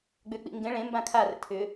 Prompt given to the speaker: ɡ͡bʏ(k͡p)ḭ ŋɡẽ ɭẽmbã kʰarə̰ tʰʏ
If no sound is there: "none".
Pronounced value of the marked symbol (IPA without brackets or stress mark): k͡p